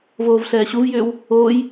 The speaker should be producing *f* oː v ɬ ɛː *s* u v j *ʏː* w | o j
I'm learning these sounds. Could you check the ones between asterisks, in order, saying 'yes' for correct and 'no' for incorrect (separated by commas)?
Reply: no, no, yes